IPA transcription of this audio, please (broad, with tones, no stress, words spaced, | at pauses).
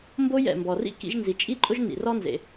mbo˥jɛ̰˩mbɔ˩rḭ˥ kḭ˥ʒ nzi˩t͡ʃʼi˥ǃʼʊ˥ʒ nḭ˩rɔ˥nzḛ˩